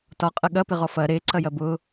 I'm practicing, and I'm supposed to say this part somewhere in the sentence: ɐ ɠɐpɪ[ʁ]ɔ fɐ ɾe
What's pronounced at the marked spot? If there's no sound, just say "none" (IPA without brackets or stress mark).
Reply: ʁ